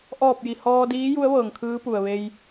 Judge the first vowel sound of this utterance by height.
mid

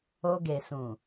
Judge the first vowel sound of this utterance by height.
mid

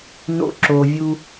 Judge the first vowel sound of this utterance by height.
mid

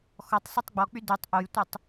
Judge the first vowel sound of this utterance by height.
mid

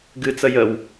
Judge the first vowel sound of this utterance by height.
high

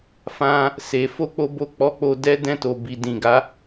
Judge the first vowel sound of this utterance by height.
low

